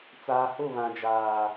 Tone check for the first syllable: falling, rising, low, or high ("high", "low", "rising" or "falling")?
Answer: low